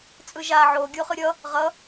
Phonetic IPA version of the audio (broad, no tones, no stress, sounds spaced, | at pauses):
t͡sʼ ɯ ʒ a ʕ o ɡʲ o χ ɯ ɾʲ ʌ | ʁ ʌ